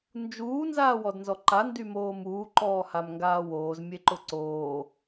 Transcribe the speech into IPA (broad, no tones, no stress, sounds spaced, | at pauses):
n d͡ʒ uː n z aː w ɔ d n z ɔ ǃ a n d y m oː m uː ǃ ɔː h a m ŋ ɡ aː w oː z mʲ e ǃ ʊ ǀ oː